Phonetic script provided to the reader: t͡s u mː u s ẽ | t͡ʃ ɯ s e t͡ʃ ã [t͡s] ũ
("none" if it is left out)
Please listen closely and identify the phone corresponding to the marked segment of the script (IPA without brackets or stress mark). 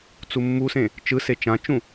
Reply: t͡ʃ